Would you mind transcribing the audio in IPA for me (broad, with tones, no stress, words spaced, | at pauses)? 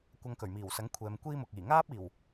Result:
kʷɐ˧ŋkɵ˨˩ɥmiː˨˩wsɐ˨˥ŋ kʷʰɛː˨˧mkʷiː˥mʊ˨k̚ iː˨˩ŋaː˥p̚iː˨˩w